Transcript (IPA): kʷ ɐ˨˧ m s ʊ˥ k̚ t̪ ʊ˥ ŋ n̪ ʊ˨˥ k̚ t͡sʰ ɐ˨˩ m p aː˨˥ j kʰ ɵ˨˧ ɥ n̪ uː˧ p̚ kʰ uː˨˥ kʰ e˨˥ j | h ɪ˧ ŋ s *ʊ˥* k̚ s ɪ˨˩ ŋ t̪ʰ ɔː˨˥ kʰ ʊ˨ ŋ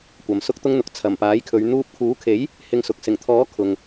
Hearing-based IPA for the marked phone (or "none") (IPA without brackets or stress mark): ʊ˨